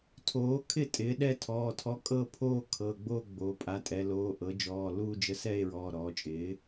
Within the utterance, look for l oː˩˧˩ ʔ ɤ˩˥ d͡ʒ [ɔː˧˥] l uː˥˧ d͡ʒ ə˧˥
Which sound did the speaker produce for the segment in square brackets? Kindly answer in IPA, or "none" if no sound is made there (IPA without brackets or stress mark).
ɔː˩˧˩